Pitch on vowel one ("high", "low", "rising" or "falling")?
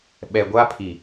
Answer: low